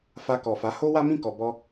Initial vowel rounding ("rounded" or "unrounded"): unrounded